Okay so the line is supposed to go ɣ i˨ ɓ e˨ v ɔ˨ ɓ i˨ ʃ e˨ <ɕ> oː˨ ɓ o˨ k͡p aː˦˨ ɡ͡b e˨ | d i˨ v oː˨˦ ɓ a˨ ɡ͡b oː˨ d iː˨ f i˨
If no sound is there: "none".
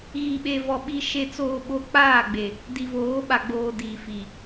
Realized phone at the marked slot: t͡s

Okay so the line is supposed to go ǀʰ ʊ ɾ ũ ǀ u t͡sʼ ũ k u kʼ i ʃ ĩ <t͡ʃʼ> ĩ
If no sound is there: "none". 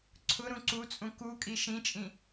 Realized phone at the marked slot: t͡ʃʼ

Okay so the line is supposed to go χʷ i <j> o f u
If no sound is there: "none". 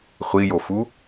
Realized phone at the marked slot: j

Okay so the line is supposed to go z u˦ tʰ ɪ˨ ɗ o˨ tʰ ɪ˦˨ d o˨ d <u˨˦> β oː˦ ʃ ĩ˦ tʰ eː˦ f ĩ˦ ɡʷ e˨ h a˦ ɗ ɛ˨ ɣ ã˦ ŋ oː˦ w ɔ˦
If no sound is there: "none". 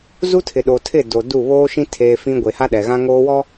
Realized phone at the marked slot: u˦˨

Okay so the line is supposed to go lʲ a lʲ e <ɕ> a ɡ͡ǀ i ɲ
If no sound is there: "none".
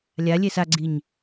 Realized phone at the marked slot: s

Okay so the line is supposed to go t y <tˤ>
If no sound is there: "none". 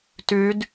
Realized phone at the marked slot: d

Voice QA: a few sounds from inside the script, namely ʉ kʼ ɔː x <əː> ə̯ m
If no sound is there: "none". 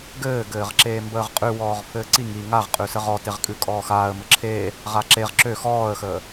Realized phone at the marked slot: aː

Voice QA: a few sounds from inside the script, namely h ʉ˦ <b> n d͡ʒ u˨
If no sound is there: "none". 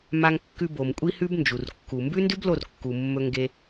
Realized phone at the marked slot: b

